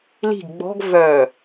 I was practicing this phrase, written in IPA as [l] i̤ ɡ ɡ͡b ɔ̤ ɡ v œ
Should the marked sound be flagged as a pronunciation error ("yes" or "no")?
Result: no